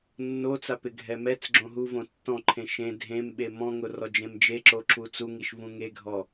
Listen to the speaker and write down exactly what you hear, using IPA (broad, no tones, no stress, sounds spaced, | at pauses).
nː o t͡s a p ɪ ɡʱ ɛ m ɛ t͡s ɡ͡ǁ õ ɦ u v õ tː ɔ̃ ǃʰ ẽ ʃ ẽ dʱ ẽ m ɓ e m ɔ̃ ŋ ʊ r ɔ d͡ʒ ẽ m d͡ʒ e ǁ o ǁ u t͡s u ŋ i ʃ v ũ ŋ e ɡʱ ɔ